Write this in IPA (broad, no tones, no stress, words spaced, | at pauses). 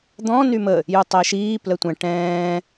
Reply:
d̪ɔ̃ nymə | jutˤɛʃiː plətʷɛ̃ ʈɛ̃ː